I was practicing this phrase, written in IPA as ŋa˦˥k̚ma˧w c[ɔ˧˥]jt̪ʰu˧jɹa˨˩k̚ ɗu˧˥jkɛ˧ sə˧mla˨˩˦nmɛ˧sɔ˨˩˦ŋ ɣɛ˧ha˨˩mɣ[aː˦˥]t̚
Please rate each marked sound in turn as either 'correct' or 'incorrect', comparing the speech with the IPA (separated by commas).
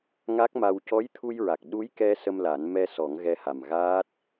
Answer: correct, correct